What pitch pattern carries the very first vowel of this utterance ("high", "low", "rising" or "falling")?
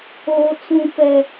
low